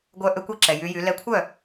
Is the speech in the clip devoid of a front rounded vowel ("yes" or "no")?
no